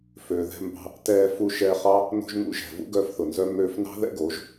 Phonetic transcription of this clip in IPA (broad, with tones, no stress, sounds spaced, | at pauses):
f øː˨ ð ɛ̤˧ m b ɑ̤˧ | t ɛː˧ f u˧ ʃ ɛː˧ χ ɑ˦ | n o̤˧ ʒ n ṵ˧ ʒ ɛ̤˨ v ṵ˦ ɡ œː˧ f θ ʊ˨ n z œ˧ m øː˧ f n ɑ̤˦ ð ɛ̰˦ ɡ o˨˦ ʒ